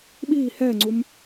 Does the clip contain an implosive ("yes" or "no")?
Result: yes